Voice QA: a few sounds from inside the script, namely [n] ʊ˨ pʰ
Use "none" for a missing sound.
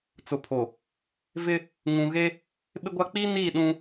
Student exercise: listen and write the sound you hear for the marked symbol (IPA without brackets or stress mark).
t͡s